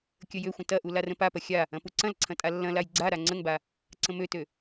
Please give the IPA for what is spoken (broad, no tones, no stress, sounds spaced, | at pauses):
kʲ ə j ø xʷ ə̃ t ɐ ʔ u l a r ə̃ p a p ɐ xʲ a | ɐ̃ p u ǀ ɐ̃ l ǀʰ ɐ̃ tʼ a lː ɐ̃ l a j ɡ͡ǀ a ɾ a ŋ͡ǀ ə ŋ b a | ǀ ə̃ m ø t ø